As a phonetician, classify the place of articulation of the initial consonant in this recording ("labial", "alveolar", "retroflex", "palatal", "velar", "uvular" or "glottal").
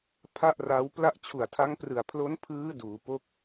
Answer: labial